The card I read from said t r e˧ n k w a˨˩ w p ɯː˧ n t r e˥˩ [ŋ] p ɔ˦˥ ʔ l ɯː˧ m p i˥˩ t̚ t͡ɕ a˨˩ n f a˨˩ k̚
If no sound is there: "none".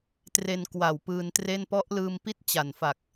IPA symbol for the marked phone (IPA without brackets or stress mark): n